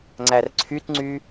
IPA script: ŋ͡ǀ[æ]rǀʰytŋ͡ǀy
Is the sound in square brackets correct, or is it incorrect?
correct